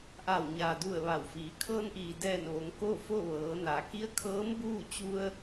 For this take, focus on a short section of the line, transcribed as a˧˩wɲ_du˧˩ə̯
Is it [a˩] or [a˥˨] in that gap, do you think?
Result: a˩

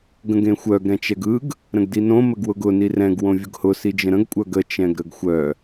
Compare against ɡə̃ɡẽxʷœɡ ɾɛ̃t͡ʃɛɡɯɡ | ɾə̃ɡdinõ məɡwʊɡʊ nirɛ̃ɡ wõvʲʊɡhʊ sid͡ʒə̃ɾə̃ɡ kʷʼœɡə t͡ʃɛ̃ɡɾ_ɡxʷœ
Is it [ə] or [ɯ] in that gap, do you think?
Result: ə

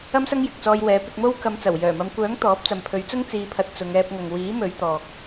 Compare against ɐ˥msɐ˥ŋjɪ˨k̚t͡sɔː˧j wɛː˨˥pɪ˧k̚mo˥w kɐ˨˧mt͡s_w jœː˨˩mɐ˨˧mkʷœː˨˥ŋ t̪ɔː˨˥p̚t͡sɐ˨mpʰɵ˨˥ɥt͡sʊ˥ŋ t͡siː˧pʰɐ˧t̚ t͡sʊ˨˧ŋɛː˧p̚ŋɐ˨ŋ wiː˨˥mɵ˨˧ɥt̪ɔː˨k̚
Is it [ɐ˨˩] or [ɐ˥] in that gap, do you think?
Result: ɐ˨˩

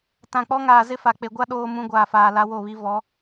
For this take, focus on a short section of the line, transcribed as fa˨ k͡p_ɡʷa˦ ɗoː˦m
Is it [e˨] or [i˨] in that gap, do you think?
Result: e˨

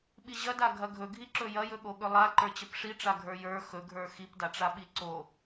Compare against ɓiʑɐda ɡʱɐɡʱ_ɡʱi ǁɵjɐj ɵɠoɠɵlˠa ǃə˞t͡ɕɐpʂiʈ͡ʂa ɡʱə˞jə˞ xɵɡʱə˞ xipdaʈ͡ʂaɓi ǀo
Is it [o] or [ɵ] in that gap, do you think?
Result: ɵ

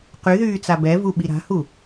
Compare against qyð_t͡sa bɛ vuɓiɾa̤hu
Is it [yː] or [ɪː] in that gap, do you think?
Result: yː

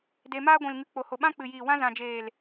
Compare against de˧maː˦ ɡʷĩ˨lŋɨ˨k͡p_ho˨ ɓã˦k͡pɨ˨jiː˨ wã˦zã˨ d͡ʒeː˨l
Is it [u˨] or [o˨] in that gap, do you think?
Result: o˨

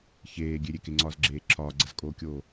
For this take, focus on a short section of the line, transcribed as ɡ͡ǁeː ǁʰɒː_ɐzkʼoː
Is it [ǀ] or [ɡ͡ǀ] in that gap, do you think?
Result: ɡ͡ǀ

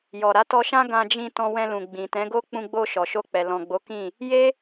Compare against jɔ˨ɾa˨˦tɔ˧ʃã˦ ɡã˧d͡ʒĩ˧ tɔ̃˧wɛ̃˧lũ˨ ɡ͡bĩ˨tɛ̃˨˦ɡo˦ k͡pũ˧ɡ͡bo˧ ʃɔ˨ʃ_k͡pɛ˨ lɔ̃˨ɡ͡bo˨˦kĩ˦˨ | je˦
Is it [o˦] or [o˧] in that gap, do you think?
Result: o˧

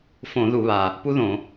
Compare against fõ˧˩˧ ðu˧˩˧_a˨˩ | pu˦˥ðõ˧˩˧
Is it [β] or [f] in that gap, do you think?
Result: β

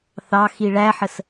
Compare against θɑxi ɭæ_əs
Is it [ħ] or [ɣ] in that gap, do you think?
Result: ħ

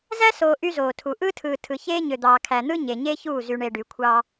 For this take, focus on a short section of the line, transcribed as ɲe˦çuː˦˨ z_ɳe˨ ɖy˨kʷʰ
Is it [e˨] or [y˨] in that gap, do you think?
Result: y˨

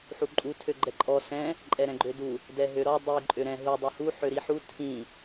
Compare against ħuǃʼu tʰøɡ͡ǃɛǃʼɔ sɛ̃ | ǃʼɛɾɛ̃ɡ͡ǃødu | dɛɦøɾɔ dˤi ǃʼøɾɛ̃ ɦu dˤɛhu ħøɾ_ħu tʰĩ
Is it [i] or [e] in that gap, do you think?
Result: i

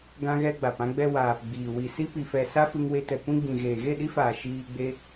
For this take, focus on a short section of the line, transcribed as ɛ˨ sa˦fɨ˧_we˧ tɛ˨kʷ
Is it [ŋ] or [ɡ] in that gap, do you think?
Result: ŋ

